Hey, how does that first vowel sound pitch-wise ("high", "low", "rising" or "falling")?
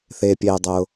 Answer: low